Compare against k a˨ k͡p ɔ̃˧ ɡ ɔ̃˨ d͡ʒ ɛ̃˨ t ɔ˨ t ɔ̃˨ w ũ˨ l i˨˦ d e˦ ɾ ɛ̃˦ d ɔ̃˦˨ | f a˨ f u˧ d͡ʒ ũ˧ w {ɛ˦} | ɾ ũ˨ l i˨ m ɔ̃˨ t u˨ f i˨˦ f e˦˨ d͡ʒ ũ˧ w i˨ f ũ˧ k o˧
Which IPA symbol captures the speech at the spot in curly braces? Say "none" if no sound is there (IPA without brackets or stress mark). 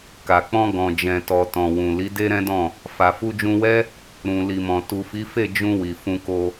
ɛ˦